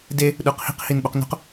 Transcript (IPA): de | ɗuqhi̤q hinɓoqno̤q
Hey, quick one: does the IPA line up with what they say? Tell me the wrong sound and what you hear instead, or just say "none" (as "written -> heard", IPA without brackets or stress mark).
none